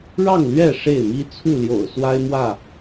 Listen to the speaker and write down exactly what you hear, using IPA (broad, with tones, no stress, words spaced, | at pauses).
ɻɑ˥˨ŋlɥɛ˥˨ ʂe˥˨ɪ̯mi˦ t͡sʰu˥˨ljo̰˨˩ʊ̯ swa˦ɪ̯mwä˥˨